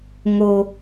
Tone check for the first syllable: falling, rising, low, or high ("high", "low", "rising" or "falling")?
low